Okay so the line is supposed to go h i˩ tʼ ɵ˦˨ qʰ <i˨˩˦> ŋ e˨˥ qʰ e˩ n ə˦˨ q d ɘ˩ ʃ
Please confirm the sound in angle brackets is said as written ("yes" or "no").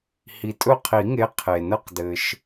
yes